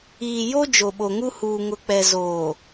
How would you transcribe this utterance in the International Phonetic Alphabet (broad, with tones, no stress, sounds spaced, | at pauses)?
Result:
iː˨ j o˦ d͡ʒ o˨ ɓ o˨ ŋ u˦ h uː˨ ŋ ʊ˨ k͡p ɛ˨ z oː˨